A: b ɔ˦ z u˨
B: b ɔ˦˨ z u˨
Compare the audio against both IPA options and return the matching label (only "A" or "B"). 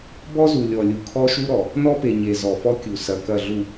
A